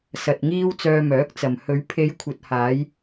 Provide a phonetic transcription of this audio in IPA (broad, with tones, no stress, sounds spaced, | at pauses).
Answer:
s ɐ˨ t̚ ŋ iː˧ w t͡s œː˧ m œː˨˥ k̚ t͡s ɐ˨ m h ɵ˨˧ ɥ pʰ e˨˧ j kʷʰ ɐ˨ t̚ h aː˨˧ j